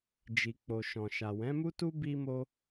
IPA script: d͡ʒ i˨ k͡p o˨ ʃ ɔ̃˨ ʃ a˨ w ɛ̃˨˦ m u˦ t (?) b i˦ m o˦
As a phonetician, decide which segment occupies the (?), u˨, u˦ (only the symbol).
u˦